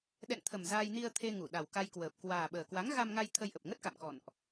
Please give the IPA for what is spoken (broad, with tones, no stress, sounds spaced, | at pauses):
ɗ ɛ̰˧˨ n t̪ʰ ə˨˩ m z aː˧ j n i˧ ə̯ t̪ʰ e˧ ŋ u˧˩ ɗ a˨˩ w k a˧ j k w əː˨˩ p̚ k w aː˨˩ ɓ əː˨˩ k w a˨˦ ŋ ɣ a˧ m ŋ a˧ j t̪ʰ ə˧ j ʔ ə˨˩ p̚ ŋ ə˦˥ t̚ k a̰˧˨ m k ɔ̰˧˨ n ʔ